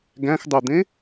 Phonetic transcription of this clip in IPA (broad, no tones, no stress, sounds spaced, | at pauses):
ɡ æ̃ x dˤ ɵ d̪ ẽ